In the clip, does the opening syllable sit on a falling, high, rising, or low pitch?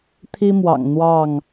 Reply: high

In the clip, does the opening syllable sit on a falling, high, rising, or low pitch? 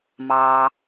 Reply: low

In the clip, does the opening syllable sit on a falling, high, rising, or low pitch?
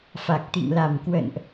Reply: low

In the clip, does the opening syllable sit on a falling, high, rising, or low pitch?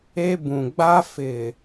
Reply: high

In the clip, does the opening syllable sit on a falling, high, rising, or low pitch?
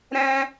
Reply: high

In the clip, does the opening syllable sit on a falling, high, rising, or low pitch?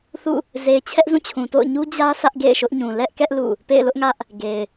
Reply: falling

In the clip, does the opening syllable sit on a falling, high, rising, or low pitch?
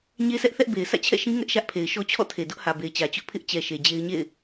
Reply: high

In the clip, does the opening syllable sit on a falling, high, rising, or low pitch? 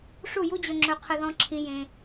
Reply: falling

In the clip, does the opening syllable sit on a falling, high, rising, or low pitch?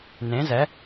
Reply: rising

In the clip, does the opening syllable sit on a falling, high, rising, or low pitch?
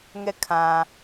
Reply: falling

